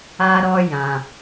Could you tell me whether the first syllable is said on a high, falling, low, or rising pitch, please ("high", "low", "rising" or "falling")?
high